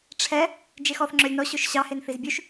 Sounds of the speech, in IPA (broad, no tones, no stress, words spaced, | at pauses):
ʈ͡ʂʰɛ | d͡ʒexɔθ ŋ͡ǁœlʲnɔ ɕɵʃɕɑhen θizbʲʉʃ